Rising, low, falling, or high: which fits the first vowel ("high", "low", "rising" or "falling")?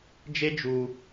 high